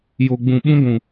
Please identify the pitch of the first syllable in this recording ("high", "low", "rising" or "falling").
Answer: low